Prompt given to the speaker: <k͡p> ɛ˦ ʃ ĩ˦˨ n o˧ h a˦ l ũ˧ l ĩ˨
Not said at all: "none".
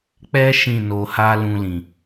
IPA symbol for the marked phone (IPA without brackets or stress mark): k͡p